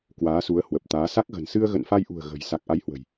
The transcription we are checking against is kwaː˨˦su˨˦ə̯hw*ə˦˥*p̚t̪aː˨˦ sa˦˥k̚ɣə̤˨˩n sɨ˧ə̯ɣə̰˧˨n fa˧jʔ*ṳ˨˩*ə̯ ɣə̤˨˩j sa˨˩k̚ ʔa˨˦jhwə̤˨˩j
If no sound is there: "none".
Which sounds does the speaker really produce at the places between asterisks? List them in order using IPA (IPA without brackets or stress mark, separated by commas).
ə˨˩, ṳ˨˩